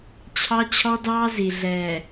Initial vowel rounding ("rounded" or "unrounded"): unrounded